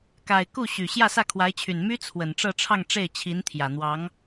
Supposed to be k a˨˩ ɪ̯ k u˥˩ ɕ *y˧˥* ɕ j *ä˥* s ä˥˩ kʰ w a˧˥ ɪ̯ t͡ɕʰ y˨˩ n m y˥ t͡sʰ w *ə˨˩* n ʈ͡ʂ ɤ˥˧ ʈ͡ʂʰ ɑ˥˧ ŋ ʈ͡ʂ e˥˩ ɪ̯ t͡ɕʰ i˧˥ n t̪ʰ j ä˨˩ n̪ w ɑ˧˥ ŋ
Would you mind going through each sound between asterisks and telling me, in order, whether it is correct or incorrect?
incorrect: y˨˩, incorrect: ä˥˧, correct

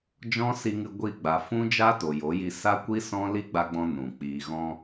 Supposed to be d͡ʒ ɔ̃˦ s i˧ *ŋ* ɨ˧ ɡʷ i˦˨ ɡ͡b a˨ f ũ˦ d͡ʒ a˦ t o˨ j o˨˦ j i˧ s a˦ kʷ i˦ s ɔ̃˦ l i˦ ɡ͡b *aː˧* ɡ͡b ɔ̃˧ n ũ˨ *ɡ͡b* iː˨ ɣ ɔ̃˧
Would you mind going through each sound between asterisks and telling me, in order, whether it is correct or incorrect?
correct, incorrect: a˧, incorrect: k͡p

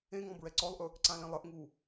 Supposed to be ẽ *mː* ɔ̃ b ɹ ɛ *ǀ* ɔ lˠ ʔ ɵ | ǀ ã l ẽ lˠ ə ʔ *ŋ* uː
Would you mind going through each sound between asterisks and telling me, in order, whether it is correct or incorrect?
incorrect: ŋ, correct, correct

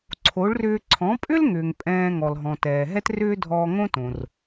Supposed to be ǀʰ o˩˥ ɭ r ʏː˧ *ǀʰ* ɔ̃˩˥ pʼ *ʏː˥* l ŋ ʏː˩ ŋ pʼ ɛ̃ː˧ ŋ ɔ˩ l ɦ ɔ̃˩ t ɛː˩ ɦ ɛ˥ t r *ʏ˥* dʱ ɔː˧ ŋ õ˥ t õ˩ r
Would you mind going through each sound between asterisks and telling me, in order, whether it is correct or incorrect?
correct, incorrect: ʏ˥, incorrect: ʏː˥

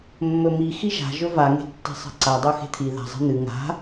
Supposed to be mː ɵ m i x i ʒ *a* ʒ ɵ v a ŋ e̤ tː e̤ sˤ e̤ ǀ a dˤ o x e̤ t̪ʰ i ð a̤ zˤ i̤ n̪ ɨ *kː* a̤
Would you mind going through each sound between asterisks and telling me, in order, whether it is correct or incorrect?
incorrect: a̤, incorrect: ŋ

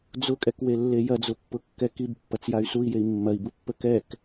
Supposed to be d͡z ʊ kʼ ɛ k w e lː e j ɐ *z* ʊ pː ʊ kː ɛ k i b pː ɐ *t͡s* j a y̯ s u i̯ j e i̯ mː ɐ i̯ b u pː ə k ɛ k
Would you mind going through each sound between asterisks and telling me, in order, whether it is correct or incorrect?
incorrect: d͡z, correct

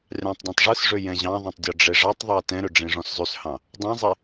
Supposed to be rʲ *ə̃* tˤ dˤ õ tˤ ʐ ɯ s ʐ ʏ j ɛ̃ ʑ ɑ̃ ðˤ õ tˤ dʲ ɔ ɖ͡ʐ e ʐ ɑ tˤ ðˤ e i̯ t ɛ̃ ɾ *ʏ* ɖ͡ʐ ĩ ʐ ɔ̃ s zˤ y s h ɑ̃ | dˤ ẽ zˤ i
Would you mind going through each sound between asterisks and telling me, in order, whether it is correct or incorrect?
incorrect: ɑ̃, correct

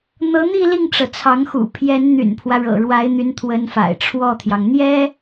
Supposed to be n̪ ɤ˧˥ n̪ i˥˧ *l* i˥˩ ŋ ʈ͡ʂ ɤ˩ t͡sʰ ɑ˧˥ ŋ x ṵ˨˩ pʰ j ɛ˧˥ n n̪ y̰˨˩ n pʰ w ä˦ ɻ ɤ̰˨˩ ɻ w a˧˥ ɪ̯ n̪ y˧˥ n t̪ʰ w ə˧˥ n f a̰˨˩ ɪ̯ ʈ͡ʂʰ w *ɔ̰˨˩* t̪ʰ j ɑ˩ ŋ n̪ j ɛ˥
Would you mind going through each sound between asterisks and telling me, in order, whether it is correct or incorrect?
correct, incorrect: ɔ˥˩

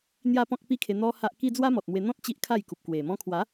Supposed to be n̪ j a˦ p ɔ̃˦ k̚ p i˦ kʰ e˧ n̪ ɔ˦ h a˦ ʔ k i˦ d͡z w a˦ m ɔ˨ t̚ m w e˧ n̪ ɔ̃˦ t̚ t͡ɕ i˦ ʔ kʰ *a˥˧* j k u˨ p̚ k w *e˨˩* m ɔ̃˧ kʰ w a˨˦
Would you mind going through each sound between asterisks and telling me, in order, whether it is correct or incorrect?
correct, correct

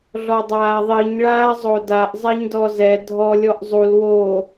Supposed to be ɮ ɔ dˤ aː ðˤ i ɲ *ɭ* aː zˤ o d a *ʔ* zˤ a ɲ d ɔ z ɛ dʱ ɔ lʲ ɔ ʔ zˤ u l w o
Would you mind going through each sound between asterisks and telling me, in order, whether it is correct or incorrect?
correct, correct

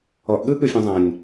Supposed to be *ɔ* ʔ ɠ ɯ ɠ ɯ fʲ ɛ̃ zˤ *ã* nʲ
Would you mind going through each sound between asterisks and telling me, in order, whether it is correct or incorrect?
correct, correct

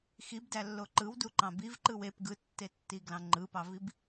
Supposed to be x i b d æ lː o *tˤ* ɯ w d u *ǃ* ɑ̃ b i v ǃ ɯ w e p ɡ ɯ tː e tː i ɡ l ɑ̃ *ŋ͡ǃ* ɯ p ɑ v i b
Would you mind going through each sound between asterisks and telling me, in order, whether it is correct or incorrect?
incorrect: ǃ, correct, correct

